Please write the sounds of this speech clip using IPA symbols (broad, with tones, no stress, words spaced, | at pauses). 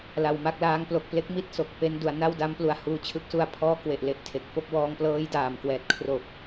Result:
la˧wma˥˩k̚ laː˦˥ŋ plo˨˩k̚ple˦˥k̚mi˦˥t̚ so˨˩k̚pe˦˥ndu˩˦a̯ na˥˩wda˦˥m plu˨˩a̯huː˧t͡ɕʰɯ˦˥k̚su˦˥a̯ pʰɔː˥˩ kwe˨˩ʔle˨˩ʔ tʰe˨˩k̚fo˥˩k̚ wɔː˧ŋplɤː˦˥j daː˨˩mkwɛː˨˩t̚kʰro˨˩k̚